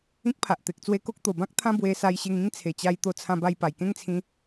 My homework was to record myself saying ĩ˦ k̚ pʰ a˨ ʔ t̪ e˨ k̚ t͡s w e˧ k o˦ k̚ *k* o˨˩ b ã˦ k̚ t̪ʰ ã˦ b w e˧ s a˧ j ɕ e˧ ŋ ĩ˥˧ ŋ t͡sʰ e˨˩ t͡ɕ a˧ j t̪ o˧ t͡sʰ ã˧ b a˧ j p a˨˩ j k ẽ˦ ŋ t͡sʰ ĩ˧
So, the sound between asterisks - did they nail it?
no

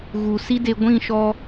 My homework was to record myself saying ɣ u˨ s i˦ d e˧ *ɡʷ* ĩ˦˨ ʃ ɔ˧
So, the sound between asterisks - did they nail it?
yes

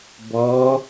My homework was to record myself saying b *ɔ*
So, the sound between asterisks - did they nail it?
yes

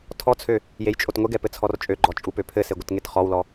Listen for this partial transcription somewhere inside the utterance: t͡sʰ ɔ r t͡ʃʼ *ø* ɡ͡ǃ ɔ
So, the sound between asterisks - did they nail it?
yes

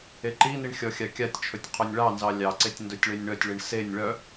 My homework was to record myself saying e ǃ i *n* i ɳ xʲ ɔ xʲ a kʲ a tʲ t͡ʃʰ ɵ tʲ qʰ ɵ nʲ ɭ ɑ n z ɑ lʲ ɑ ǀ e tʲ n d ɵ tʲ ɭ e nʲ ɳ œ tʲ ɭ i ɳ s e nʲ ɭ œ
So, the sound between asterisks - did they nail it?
yes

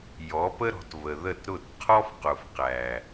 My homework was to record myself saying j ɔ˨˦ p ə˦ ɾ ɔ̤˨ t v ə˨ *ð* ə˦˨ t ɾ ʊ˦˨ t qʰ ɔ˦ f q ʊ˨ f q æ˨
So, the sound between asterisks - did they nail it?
yes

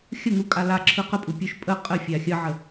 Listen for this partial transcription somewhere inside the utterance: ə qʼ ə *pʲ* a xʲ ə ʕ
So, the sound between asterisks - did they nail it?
no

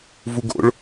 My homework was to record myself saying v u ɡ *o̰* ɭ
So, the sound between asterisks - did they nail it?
yes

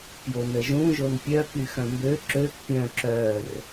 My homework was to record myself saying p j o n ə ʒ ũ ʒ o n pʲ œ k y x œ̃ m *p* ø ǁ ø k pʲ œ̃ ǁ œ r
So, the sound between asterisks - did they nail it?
no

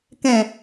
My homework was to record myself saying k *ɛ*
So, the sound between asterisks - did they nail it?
no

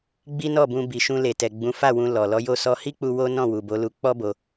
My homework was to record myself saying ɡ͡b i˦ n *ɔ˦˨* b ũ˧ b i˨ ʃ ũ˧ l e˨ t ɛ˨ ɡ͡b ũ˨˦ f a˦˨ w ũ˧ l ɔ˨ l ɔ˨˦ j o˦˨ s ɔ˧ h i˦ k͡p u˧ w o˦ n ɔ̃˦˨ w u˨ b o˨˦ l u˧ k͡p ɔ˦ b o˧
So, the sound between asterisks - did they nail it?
yes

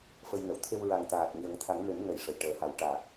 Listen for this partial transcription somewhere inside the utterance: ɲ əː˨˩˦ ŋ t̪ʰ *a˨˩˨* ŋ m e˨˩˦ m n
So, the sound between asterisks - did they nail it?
no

